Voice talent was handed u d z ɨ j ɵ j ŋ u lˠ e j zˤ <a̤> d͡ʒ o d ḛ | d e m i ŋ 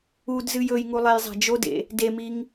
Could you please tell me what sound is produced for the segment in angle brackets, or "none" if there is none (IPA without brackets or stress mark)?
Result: a̤